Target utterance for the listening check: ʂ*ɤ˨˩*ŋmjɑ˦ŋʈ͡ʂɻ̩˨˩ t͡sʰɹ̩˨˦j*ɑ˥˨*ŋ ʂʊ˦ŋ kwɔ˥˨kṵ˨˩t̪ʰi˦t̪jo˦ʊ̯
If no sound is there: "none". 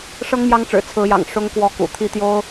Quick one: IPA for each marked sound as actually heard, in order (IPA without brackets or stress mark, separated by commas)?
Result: ɤ˦, ɑ̰˨˩